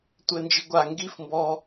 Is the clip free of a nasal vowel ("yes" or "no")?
yes